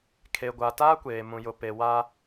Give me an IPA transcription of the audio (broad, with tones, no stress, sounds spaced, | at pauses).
kʰ e˨ ɡʷ a˨ t aː˦ kʷ eː˨ m ũ˨ j ʊ˨ p e˨ w a˦